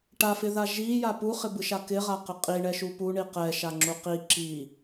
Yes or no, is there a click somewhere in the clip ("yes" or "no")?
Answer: yes